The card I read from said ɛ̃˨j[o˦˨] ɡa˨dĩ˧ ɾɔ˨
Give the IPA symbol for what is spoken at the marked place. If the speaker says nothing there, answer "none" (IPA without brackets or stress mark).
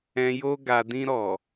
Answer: o˧